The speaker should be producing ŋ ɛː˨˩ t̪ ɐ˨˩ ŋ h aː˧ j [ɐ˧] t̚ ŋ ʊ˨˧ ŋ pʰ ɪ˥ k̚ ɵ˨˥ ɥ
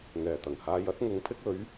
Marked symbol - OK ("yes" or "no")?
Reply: no